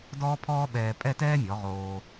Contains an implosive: yes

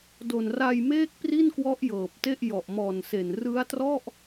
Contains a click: no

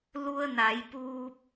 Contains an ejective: no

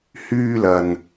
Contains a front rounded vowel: yes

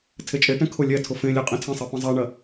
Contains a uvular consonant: yes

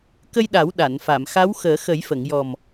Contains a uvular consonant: no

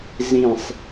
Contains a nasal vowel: yes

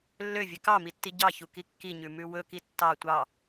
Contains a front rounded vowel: yes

